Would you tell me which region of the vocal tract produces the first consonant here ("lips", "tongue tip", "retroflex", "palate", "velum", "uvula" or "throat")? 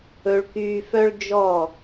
retroflex